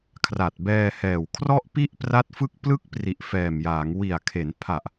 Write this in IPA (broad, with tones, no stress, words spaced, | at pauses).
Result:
kʰra˨˩t̚bɛː˧hɛː˨˩w kʰrɔ˥˩ʔpi˥˩ʔpra˦˥t̚ fɯ˦˥k̚plɯ˦˥k̚pri˨˩ʔ fɛː˨˩mjaː˩˦ŋ wi˨˩a̯kʰe˩˦npʰa˨˩ʔ